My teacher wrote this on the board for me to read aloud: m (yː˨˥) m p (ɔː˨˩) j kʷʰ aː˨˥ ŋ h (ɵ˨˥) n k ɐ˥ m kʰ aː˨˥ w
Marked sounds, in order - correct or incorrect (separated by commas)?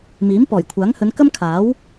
incorrect, correct, incorrect